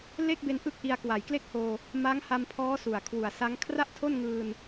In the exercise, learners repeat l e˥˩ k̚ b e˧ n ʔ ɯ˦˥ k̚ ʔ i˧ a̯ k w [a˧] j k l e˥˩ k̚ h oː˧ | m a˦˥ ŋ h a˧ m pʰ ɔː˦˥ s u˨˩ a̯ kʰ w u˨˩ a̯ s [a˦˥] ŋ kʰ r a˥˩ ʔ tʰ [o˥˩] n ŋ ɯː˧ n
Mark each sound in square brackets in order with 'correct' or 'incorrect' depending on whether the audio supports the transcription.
incorrect, correct, correct

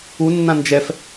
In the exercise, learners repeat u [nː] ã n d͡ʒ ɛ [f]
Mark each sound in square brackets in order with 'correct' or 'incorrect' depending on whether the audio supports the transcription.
correct, correct

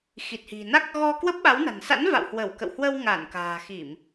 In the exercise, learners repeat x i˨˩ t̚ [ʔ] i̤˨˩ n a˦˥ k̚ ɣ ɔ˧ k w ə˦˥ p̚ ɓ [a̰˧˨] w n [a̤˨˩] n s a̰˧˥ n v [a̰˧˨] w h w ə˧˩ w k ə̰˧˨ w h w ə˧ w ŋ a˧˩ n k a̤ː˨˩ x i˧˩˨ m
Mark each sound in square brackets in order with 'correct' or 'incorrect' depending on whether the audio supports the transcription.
incorrect, incorrect, correct, correct

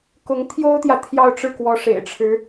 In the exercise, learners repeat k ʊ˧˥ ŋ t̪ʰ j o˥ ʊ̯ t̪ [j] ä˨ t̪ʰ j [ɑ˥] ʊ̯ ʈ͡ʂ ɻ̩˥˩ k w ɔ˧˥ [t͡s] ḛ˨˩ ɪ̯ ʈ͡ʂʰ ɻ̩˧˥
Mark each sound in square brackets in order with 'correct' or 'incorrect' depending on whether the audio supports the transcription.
correct, incorrect, incorrect

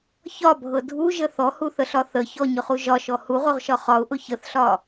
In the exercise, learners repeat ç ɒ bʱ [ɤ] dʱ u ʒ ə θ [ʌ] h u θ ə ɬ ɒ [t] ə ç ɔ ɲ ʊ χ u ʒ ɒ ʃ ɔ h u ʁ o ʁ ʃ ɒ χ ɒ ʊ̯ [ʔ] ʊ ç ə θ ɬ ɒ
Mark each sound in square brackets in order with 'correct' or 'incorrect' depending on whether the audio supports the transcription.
correct, incorrect, incorrect, correct

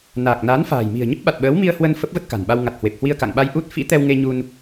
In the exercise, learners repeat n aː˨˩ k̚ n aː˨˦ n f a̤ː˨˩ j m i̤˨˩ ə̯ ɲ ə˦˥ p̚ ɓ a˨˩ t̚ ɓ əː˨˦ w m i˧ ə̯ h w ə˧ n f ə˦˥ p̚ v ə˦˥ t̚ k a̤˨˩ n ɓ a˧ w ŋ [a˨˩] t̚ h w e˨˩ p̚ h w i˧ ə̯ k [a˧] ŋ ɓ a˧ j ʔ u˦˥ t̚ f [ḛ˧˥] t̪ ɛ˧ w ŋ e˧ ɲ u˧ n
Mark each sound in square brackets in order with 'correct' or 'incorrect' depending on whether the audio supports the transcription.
correct, incorrect, incorrect

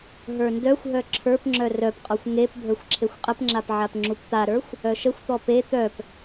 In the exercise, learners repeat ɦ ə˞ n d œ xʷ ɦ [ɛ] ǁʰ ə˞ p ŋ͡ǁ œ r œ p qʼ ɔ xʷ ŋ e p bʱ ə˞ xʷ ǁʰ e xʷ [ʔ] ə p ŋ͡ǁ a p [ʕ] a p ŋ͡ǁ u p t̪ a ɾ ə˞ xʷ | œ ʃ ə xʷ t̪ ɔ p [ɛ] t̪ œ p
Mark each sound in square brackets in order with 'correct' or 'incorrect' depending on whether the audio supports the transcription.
incorrect, incorrect, correct, incorrect

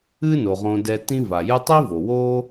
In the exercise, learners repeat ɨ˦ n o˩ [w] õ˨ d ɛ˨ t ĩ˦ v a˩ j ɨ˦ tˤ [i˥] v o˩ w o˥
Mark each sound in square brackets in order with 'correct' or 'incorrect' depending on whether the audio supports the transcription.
incorrect, correct

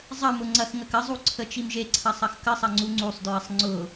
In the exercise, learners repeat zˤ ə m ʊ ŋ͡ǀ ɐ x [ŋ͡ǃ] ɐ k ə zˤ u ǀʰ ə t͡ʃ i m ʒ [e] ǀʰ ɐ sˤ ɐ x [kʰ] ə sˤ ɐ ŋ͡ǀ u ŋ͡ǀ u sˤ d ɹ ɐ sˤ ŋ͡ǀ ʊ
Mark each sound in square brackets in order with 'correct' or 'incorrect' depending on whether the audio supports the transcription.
incorrect, correct, incorrect

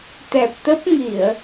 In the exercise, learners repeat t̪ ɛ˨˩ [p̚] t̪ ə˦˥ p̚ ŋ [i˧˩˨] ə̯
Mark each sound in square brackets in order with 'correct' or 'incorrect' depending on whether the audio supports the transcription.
correct, correct

